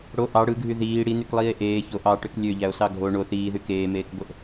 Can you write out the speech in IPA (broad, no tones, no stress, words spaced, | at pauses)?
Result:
ɽo ʔɑ ɽɯɡʱy ðiː ɽinyklˠiːe̯ ʔeː çoʔ ɑʈøk lʲøʎæo̯sɑ ɡʱo ɳo θiːðy keːmeːkboʔ